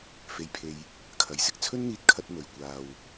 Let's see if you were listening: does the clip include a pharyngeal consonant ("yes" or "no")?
no